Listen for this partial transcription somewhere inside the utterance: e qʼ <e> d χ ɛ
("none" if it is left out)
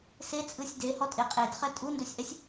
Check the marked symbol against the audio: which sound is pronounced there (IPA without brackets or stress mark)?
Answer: e